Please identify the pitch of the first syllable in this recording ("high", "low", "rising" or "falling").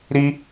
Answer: high